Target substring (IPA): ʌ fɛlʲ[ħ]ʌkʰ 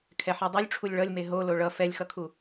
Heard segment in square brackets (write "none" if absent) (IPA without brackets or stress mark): x